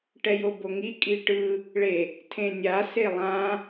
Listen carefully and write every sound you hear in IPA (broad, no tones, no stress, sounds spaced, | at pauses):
ʈ ɛ j o b o ŋ i kʼ i ʈ ɯ | ɭ e | tʰ ẽ nʲ a s e lˠ ã